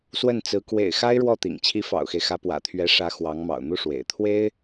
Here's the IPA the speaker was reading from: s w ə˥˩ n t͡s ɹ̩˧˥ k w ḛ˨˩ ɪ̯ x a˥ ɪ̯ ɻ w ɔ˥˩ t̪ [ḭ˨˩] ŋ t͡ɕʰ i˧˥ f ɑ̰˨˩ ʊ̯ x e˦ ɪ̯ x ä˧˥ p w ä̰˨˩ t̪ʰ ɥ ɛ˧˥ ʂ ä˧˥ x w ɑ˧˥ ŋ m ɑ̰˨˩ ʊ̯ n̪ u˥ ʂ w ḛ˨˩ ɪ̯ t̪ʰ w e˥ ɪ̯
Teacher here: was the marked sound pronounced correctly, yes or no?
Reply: yes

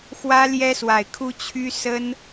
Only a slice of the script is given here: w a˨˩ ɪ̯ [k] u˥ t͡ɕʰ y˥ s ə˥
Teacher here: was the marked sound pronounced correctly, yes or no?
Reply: no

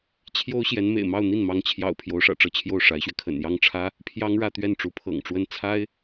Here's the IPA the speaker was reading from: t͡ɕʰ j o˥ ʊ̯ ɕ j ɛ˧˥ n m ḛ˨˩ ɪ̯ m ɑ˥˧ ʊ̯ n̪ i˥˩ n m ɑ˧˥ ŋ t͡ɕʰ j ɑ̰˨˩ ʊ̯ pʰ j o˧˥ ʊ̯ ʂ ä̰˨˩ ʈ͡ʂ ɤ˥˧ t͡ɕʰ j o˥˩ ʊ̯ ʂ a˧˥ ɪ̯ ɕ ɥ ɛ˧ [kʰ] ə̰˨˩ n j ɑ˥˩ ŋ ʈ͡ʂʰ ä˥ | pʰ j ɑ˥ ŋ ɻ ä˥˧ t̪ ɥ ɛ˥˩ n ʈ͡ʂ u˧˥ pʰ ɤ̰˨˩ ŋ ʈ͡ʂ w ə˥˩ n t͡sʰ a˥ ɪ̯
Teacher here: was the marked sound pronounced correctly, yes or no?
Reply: yes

